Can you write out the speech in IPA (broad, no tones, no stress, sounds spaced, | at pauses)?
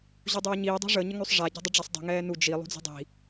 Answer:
ʑ u dˤ ʉː ɲ iː dˤ i̤ ʐ ə ɲ ə ŋ ʉ sˤ ʐ a ɟ ɛ̤ dˤ ə ɖ͡ʐ a sˤ dˤ i̤ ŋ ɛː n u d͡ʒ i lˠ ṳ d͡z i̤ dˤ i̤